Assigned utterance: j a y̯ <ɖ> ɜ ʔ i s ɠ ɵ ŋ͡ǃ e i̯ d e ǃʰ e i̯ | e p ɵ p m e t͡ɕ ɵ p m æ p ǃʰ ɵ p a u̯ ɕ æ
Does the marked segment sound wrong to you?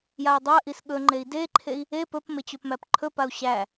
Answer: yes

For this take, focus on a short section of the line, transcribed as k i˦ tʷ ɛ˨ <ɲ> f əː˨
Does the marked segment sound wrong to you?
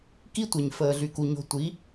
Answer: no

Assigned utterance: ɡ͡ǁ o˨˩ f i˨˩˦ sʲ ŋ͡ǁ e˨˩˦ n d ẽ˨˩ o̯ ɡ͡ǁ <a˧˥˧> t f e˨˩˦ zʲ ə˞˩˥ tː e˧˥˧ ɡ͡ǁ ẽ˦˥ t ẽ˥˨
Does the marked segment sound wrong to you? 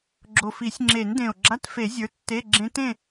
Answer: no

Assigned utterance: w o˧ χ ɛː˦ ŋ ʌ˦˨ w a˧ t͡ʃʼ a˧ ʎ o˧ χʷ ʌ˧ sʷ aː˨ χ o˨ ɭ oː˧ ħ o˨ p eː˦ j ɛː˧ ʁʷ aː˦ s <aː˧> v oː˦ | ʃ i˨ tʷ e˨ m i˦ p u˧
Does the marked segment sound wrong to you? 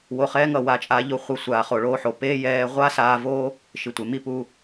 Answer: no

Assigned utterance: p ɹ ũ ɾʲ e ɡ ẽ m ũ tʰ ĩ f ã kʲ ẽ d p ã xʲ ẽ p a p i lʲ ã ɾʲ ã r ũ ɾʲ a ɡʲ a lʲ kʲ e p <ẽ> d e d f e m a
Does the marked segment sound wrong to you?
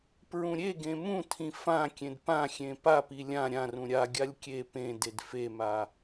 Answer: no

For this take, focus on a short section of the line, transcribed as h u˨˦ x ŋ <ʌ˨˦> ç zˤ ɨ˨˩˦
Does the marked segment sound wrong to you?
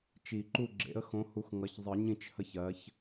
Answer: no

